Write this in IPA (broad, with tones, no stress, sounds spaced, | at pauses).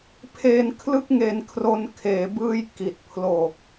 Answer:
pʰ eː˧ n kʰ l ɯ˥˩ k̚ ŋ e˧ n kʰ r o˧ n kʰ eː˩˦ b ɯː˧ j k i˨˩ t̚ pʰ l o˨˩ k̚